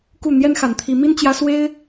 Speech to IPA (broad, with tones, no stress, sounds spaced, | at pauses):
k u˥˩ n̪ j ɛ˥ n x a˧˥ n t̪ʰ i˧˥ m i˥ n t͡ɕ j ä˥ s w e˥ ɪ̯